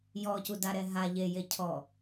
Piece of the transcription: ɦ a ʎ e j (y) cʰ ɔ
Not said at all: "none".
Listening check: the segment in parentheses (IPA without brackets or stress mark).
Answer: e